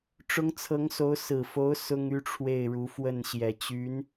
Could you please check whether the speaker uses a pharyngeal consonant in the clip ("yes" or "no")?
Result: no